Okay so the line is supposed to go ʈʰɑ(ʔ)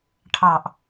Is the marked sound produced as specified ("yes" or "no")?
yes